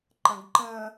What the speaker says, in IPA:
ǃ ə̃ ɡ ǃ ə̃

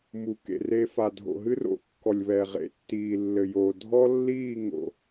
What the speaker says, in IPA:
m u˨ k ḛ˨ r e˧ f a˨ dʱ o̰˨ ɦ ɨ˦ r o̰˨ kː ɔ˨ lʲ β ɛ˨ ʁ ḛ˨˦ tː iː˨ lː ɘ˨ j o˨ dʱ ɔ˦ lː iː˦˨ ŋ o̰˨

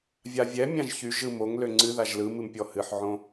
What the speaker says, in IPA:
vʲ a vʲ ɛ mʲ ã ʒ ç y ʒ ɯ m o ŋ l ø ŋ͡ǀ ɨ ð a ʒ l ɯ m ɨ m pʲ ɔ h ɨ ħ ʕ õ

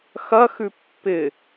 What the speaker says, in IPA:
x ɐ x ʉ pː ɪ

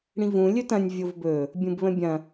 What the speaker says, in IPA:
ɽ ĩ v ũ lʲ ɵ t ɐ̃ nʲ vʲ o v b ɵ | bʲ ũ b β ə̃ bʲ ɐ̃

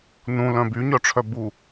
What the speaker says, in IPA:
n ũ l œ̃ b y ɲ œ ʈ͡ʂʰ œ b u

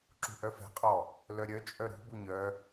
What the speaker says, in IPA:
ǁ ṳ ʔ œ f ɛ̤ qʼ ɔ | l œ ɾʲ œ t͡ʃʼ œ ɾ ṳ b u ɲ œ

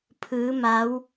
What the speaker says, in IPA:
pʰ ɯː˩˧ m a˩˧ w

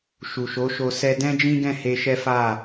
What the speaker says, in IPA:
ʃ u˨ ʃ o˨˦ ʃ o˧ s ɛ˧ d ɛ̃˦ d͡ʒ ĩ˦ ɡ ɛ̃˦˨ h e˧ ʃ ɛ˦ f a˦˨

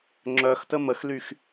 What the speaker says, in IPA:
ŋ͡ǁ œ x t ə m ə x l y x

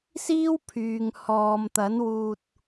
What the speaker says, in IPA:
s iː˥ w pʰ yː˨ ŋ h ɔː˨ m t̪ ɐ˨˥ n w uː˧ t̚

